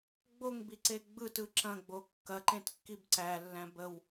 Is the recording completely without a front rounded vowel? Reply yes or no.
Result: yes